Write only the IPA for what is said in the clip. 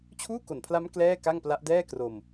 t͡ɕʰuː˥˩ko˨˩npʰla˦˥m klɛː˥˩ka˥˩ŋpla˦˥ʔ dɛː˥˩kro˧m

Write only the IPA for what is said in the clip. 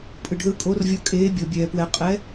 pʼɯ˨ɖðɯ˧˥kʼo˧˥rvʲɤ˧˥ kʼeː˧˥bʲɤ˨bʲɛː˨ pwɛ˨ qʼɛ˧˥

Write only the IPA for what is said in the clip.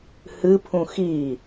hɨpʰũ xi

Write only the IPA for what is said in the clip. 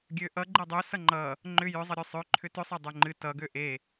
ɡʲøʔʌ ɡ͡ǃedˤø sʌŋ͡ǃʌ | ŋ͡ǃʏ jʏzˤʌɾʲø sˤøǃʰʏ tʏsˤe dˤøŋ͡ǃɨ tʌɡø ʔe

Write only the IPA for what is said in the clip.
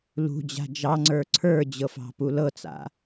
lṳd͡ʑa̤ d͡ʒɑŋ͡ǀə˞ ǀʰə˞d͡ʑɤfɑ̤pu lɤt͡sa̰

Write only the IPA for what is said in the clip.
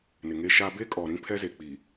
nɪ˨ŋe˦ʃa˦ be˦kʼɔ˨ ɾĩ˦pʰɛ˦ze˨ k͡pi˨

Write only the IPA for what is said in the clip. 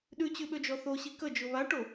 ɗʉt͡ɕʉɓød͡ʒɔ θoɕi kəd͡ʒʊ βaʈo

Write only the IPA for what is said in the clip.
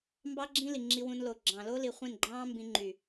mbɑ˦ɡ͡ǁĩ˦ li˨ŋ͡ǁi˧wũ˧nlo˨ ɡ͡ǁɑ̃˨lo˦ li˨χʷĩ˦˨nɡ͡ǃɑ̃ː˦mbĩ˧ ŋ͡ǃy˨

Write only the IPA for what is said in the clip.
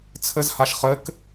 t͡sʰɘzhaʃ χɘk

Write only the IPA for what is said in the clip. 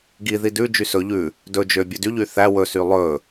ɡiði dʉd͡ʒy sɵ ʎʉ | dɵ d͡ʒø bʲʉdyʎy θæ wɵsy lˠɵ

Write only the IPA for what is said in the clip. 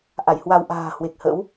ʔa˧˩jhwa˧w ʔa̤ː˨˩hwe˨˩k̚hə̰˧˥w

